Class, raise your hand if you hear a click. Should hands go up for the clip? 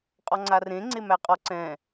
yes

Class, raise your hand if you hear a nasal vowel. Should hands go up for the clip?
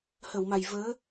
no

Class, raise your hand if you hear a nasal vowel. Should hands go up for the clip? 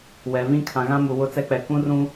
yes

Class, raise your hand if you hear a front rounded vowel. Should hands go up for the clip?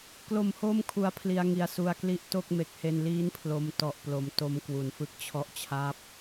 no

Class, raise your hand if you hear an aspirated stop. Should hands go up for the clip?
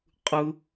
no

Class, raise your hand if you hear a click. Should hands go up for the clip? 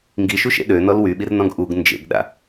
no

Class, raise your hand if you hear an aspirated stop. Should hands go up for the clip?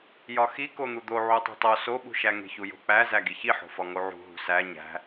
no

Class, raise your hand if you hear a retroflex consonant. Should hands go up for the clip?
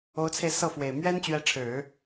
yes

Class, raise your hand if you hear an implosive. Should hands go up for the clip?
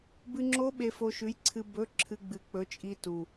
yes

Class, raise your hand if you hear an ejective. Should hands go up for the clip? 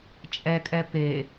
yes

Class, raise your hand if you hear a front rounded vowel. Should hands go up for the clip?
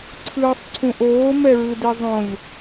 no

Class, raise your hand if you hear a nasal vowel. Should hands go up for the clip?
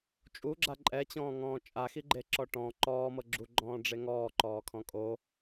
yes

